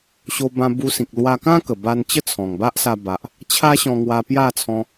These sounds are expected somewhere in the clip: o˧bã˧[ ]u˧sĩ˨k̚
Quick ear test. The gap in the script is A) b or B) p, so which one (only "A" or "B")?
A